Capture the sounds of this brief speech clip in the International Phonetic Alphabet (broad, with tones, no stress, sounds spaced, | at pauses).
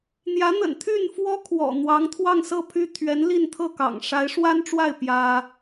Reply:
n̪ j ä˧˥ n̪ ə̰˨˩ n t̪ʰ y˥˩ n f w ɔ˥ kʰ w ɔ̰˨˩ n̪ w ɑ˧˥ ŋ t̪ʰ w ɑ˥˧ ŋ s ɤ˥˩ pʰ y˥ t̪ʰ ɥ ɛ˧˥ n l i˥˧ n t̪ʰ ɤ˥˩ k ɑ̰˨˩ ŋ ʂ a˧˥ ɪ̯ ʂ w a˥ n ʈ͡ʂ w a˥˩ ɪ̯ p j ä˥